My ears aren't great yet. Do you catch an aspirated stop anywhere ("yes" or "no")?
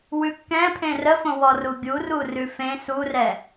yes